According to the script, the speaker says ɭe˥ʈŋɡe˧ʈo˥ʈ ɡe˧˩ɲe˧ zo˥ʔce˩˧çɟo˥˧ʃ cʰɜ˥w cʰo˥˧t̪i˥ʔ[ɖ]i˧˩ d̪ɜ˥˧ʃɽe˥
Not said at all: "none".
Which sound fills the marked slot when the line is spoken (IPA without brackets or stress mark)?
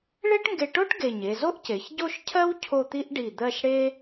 ɖ